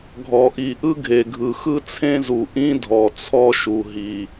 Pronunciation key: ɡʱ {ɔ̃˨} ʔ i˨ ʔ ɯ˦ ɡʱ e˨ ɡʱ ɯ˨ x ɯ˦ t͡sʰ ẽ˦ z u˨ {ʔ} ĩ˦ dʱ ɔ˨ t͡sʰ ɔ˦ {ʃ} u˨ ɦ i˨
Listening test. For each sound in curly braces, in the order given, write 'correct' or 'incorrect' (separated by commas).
incorrect, correct, correct